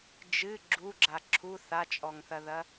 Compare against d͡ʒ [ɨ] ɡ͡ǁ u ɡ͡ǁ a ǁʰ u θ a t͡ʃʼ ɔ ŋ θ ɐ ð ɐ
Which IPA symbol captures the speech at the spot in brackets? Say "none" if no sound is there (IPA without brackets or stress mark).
ɨ